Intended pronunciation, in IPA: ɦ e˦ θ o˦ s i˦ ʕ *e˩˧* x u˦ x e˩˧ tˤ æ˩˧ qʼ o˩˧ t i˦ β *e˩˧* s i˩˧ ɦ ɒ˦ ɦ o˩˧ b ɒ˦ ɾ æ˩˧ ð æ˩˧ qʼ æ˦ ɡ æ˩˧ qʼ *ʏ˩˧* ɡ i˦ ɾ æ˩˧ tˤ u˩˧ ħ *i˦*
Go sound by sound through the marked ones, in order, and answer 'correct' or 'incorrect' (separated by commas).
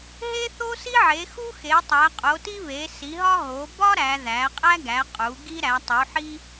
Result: correct, correct, incorrect, correct